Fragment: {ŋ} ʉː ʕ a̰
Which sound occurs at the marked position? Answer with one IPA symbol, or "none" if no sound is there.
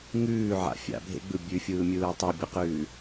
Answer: ŋ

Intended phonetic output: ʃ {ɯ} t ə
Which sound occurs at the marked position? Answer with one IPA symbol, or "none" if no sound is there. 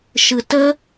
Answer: ɯ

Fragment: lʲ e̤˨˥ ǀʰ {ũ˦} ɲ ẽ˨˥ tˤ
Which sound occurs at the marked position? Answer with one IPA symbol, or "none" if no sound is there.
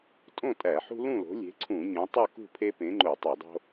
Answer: ũ˧˩˧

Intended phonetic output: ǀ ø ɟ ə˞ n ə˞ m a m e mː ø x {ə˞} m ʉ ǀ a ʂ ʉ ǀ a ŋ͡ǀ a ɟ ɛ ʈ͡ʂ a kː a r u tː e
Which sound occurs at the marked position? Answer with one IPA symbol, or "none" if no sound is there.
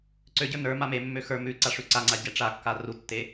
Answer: ə˞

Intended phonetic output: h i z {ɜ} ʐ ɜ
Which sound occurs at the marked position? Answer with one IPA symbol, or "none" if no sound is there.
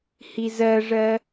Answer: ɜ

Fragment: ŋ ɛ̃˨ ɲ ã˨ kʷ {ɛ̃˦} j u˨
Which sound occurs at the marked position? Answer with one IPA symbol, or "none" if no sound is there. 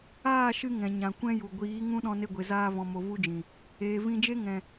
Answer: ɛ̃˦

